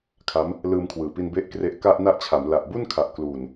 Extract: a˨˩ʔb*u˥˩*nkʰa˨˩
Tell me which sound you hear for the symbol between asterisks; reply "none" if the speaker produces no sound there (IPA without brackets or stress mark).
u˥˩